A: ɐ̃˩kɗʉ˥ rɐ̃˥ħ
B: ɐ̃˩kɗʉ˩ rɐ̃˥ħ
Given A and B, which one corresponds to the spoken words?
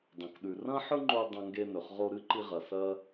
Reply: B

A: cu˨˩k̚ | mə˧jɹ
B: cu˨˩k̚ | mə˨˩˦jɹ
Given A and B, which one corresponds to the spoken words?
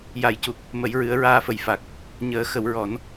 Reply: B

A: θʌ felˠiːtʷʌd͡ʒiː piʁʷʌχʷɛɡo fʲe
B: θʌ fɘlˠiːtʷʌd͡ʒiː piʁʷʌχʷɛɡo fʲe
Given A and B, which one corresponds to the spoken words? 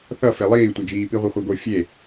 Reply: A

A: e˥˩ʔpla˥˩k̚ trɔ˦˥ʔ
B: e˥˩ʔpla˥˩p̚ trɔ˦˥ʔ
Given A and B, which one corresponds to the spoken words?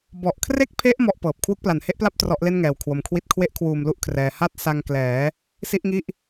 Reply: B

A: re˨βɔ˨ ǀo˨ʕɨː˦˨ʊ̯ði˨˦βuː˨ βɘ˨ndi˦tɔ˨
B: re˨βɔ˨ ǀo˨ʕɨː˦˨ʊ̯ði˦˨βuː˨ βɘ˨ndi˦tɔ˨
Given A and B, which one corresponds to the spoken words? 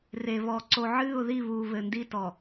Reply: B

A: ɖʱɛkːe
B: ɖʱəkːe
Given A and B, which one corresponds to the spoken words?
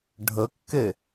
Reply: B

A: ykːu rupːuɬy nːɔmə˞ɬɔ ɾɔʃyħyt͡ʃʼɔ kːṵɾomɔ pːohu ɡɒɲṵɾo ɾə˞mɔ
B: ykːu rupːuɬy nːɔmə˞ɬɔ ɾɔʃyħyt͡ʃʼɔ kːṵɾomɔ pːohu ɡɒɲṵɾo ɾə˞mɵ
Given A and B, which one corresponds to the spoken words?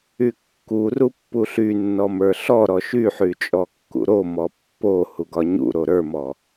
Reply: A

